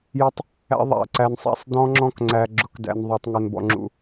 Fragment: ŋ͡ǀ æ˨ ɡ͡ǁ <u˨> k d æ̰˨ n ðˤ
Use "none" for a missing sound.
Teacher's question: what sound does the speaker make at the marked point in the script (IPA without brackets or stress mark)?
ʊ˨